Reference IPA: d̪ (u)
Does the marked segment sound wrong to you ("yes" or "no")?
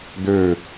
yes